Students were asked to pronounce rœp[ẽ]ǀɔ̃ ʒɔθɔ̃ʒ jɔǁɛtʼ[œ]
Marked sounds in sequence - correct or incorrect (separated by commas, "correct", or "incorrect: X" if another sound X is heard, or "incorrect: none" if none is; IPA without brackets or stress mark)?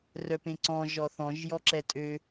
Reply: correct, incorrect: ø